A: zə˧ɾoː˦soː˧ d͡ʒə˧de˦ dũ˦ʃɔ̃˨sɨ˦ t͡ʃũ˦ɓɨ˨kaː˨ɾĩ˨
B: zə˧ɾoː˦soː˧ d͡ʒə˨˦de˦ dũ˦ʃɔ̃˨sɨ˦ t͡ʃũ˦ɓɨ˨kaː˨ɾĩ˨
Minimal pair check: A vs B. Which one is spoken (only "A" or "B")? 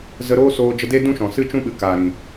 A